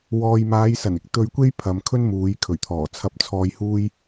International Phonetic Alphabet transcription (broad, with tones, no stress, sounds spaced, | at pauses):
w ɔː˨ j m aː˨˧ j s ɐ˨˩ n ɪ˨˥ k̚ t̪ ɵ˧ ɥ kʷ e˥ j pʰ ɐ˨ m kʰ ɵ˥ n m uː˨˧ j kʰ ɵ˨˩ ɥ t̪ʰ ɔː˨˩ t͡sʰ ɐ˧ p̚ t͡sʰ ɔː˧ j h uː˥ j